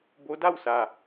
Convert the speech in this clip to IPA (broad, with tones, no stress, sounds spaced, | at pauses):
b o˧˥ d a˥˨ w s a˧˩